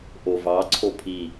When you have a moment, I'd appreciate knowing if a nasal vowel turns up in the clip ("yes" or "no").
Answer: no